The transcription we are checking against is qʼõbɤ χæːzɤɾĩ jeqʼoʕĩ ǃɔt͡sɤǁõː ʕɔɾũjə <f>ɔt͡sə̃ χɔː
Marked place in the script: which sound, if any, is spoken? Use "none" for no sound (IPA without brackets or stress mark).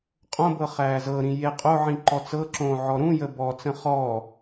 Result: b